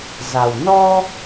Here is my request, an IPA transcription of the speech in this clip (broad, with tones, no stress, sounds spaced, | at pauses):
z a˨˩ w n ɔ˧